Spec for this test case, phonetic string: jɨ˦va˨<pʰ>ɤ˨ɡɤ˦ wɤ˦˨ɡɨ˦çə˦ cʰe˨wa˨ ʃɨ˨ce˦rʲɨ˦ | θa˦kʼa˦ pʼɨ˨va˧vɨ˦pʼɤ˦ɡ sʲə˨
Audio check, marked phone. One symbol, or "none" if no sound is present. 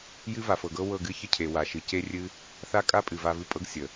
f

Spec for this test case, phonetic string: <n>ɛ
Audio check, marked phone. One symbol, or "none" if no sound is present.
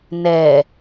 n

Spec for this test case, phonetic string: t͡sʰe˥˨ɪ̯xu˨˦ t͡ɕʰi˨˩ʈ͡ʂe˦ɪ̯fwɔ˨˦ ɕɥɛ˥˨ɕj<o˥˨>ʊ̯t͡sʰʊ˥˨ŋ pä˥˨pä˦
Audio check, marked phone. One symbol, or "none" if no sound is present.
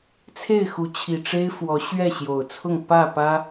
o˨˩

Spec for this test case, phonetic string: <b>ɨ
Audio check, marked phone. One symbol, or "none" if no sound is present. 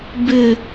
b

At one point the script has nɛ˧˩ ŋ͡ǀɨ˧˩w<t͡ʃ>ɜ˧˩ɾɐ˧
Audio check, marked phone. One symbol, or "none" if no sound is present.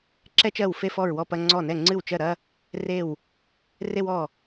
t͡ʃ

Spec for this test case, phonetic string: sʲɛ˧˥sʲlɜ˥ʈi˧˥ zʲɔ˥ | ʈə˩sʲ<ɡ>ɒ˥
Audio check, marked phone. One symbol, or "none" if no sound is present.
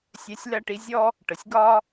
ɡ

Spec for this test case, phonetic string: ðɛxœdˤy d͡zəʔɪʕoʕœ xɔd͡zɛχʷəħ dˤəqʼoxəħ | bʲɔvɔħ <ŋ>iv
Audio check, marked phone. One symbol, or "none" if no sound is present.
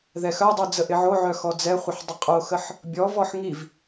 ŋ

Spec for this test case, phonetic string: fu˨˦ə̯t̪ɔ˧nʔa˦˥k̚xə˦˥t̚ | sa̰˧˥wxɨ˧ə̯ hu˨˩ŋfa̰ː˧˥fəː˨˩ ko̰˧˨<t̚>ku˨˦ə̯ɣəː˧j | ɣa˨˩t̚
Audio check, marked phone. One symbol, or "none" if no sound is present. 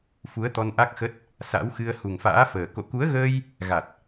none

